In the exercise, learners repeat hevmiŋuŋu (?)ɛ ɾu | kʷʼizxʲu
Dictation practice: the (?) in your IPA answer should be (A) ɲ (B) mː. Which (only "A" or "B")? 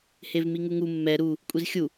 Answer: B